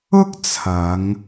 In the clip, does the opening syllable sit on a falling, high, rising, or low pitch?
high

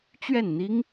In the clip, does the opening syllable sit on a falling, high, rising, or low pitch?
falling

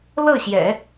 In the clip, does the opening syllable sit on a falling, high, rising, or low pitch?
falling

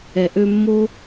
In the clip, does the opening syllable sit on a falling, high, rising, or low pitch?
low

